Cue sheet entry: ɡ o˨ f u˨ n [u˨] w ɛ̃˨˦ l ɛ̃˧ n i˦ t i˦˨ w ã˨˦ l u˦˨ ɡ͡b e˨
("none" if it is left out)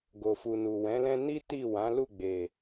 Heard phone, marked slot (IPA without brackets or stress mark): u˨